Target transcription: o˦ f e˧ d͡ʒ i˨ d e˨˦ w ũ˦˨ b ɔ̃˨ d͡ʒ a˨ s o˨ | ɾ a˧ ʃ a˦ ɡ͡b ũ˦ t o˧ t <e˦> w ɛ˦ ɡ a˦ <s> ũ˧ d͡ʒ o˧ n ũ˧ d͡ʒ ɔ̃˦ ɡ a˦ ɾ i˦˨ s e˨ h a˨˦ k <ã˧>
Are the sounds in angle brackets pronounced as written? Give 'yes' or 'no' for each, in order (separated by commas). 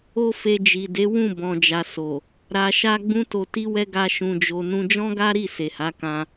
no, no, yes